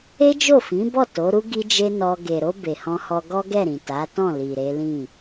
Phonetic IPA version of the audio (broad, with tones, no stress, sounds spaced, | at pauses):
e˦ d͡ʒ o˦˨ f ĩ˨˦ b ɔ˦˨ t o˨˦ ɾ u˦ ɡ i˦ d͡ʒ e˦ n ɔ˧ ɡ e˨ ɾ o˧ b e˨ h ɔ̃˧ h ɔ˧ ɡ ɔ˦ ɡ ɛ˦˨ ɾ ĩ˨ t a˨˦ t ɔ̃˦˨ l i˨ ɾ e˨˦ l ĩ˦˨